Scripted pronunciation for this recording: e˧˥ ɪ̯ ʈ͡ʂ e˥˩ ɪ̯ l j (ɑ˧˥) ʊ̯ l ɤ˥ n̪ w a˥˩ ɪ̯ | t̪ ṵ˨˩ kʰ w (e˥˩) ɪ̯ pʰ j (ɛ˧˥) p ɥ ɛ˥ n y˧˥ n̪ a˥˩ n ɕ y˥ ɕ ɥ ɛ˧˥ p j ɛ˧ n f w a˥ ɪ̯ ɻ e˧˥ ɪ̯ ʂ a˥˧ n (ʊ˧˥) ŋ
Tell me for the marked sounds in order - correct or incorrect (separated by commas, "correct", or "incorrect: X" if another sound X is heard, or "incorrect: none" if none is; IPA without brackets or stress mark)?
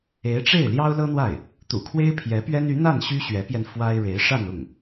incorrect: ɑ˥, incorrect: e˥, correct, incorrect: ʊ˥˩